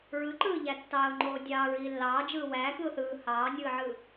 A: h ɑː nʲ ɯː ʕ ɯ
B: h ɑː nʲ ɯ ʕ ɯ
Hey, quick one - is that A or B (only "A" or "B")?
A